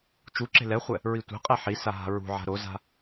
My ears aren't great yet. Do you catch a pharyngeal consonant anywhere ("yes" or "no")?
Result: yes